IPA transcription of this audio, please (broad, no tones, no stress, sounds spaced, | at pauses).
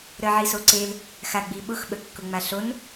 ɾ ə ʕ i s o ǀ e l | x a ɡ͡b i ɓ ʊ x ɓ ə kː ʊ ŋ͡m a ɬ o n